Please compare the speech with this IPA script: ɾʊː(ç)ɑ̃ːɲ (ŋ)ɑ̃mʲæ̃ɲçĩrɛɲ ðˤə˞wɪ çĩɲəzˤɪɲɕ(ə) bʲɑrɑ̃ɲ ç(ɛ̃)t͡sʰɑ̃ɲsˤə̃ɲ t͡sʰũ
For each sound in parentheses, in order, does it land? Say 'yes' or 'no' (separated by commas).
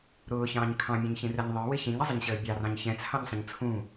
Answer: yes, no, no, yes